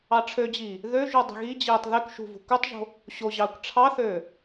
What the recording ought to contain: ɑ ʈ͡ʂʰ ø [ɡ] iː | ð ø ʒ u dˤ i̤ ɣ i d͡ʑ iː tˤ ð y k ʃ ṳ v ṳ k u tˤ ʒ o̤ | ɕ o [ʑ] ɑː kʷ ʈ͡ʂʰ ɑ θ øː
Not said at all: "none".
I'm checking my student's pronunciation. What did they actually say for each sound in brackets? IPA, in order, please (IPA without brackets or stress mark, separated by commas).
d͡ʑ, ʑ